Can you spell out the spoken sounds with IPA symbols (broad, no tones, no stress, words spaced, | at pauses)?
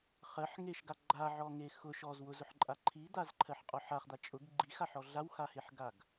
χɜħŋeʃɡa ɡ͡ǃaʕɔŋe xʊʃ ɔz wʊzʊħǃʼa ǃʰid̪azǃʰɜħqʼɔ ħaχd̪a t͡ʃʼʊɡ ɡ͡ǃixaħɔ ɮawxaheħɡaɡ